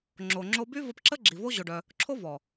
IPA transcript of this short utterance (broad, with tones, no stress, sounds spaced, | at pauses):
ŋ͡ǁ o˨ ŋ͡ǁ o˧ b y˦ v ə˧ p ǁ ə˦ ɡ͡ǁ i˨ v o˦ ʑ o˧ ɖ œ˧ | ǁʰ o˦ v ɔ˨